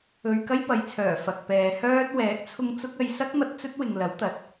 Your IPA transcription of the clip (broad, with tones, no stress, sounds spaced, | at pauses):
ɵ˧ ɥ k ɐ˥ j p ɐ˨˧ j t͡sʰ œː˨˩ f ɐ˨ k̚ p ɛː˨ h œː˥ t̚ w ɛː˨˥ k̚ t͡sʰ ʊ˧ ŋ t͡s ʊ˥ k̚ ɐ˧ j s ɐ˥ k̚ m ɐ˧ t̚ t͡s ɵ˥ t̚ w ɪ˨ ŋ l ɐ˨˥ w t̪ ɐ˨ t̚